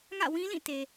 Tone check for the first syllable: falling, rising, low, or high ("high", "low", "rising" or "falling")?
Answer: falling